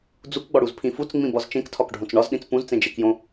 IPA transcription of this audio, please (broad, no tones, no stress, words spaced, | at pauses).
d͡zukɡ͡bɒɽuzpʰĩ fut͡sŋ͡mĩbɒz t͡ʃẽktʰɒkɖʱõt͡s ɳɒzɗĩt͡s pũzt͡sẽd͡ʒekjõ